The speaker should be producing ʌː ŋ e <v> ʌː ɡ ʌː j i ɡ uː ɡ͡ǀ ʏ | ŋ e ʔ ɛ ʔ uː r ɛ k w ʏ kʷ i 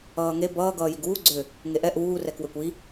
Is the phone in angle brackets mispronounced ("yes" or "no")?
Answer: yes